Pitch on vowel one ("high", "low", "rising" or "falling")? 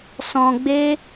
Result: low